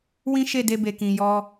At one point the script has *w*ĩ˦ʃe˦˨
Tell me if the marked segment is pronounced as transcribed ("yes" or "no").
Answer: yes